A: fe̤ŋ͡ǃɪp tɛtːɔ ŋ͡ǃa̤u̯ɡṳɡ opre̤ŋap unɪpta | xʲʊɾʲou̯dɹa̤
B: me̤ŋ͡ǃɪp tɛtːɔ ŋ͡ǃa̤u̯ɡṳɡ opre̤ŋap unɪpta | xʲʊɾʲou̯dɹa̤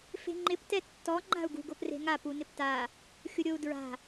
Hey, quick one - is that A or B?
A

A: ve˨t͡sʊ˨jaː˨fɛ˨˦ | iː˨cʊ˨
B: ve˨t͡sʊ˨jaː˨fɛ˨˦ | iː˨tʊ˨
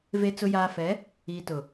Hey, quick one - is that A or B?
B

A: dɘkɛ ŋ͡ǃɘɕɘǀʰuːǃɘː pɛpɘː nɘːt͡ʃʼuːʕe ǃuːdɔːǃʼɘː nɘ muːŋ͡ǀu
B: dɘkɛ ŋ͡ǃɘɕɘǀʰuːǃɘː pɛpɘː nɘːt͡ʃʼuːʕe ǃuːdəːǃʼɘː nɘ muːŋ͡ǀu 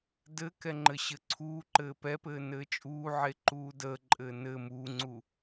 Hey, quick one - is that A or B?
B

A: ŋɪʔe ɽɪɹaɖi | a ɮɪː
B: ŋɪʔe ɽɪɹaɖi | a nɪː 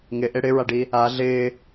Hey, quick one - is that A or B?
A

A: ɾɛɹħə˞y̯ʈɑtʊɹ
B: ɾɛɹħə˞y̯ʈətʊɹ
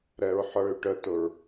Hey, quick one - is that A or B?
B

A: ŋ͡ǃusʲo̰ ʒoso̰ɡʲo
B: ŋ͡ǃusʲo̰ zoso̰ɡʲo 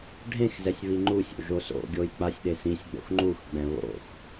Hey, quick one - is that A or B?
A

